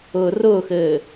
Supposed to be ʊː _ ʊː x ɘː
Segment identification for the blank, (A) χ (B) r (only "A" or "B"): B